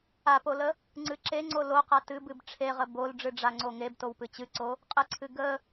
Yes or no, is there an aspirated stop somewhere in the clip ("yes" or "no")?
yes